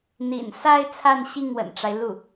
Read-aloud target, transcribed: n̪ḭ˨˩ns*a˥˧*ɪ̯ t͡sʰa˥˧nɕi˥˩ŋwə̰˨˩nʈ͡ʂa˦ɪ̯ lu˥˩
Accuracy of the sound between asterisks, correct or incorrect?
incorrect